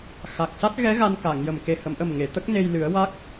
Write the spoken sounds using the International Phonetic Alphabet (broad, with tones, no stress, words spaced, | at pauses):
xa˨˩k̚sa˦˥t̚ɣɛ˧˥ ɣa˧nka˨˩˨ŋjə˨˩m ke˨˩hə˨˩˨mʔə˨˩m ŋe˨˩˨t̪ə˦˥k̚ne˧j lɨ˨˩˦ə̯wa˦˥k̚